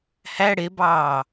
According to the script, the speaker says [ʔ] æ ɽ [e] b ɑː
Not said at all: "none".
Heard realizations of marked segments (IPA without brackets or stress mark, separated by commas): h, e